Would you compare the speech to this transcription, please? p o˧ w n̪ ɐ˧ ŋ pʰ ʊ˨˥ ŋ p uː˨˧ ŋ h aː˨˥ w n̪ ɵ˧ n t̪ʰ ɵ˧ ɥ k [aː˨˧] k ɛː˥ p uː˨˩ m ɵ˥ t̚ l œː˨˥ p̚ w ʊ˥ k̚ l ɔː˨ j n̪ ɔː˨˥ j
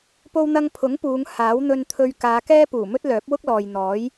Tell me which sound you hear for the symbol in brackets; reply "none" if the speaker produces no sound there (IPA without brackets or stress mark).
aː˨˧